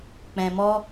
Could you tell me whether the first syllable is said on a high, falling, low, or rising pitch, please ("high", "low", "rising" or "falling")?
low